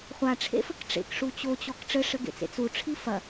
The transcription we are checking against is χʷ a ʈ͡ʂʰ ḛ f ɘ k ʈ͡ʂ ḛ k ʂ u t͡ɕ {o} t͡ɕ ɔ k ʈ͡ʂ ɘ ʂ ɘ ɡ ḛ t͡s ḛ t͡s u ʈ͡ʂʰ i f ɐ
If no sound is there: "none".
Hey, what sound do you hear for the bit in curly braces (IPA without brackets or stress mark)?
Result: o